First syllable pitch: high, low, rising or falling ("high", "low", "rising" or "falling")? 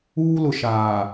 high